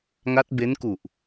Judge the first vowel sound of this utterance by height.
low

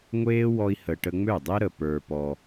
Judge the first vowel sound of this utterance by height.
mid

